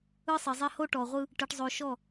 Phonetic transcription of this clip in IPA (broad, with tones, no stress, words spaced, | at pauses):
ɯ˦sˤi˨zˤɛ˦ ho˦ʈɔ˨ʁʷɯ˦ | ʈɯ˨ʈzˤo˨ʃɔ˦˨